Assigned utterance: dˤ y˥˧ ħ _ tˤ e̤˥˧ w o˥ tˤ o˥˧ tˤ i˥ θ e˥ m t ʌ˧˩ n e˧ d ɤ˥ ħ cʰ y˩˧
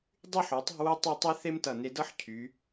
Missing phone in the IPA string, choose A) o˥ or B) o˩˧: B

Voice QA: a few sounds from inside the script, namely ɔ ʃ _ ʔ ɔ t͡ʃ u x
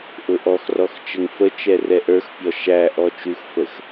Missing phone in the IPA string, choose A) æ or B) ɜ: A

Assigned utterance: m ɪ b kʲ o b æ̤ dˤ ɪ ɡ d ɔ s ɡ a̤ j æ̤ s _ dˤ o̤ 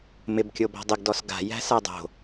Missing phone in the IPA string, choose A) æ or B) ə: A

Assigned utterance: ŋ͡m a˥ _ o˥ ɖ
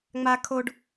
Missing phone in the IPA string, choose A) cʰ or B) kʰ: B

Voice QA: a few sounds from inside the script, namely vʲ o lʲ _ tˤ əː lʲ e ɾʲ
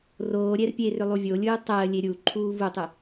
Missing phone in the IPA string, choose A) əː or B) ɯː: B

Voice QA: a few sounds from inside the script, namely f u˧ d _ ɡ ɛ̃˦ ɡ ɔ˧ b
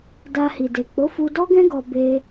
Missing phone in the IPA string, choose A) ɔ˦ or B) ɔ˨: A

